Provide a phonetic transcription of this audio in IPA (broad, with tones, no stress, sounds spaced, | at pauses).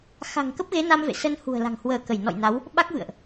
x a̤˨˩ ŋ k ə˦˥ p̚ ɣ e˨˦ n a˧ m v ḛ˧˨ s ə˧ n h ṳ˨˩ ə̯ l a̤˨˩ ŋ h w əː˧˩ k ə˧˩ j n ɔ̰˧˨ j n a˨˦ w | ɓ a˦˥ k̚ v ɨ̰˧˨ ə̯ ʔ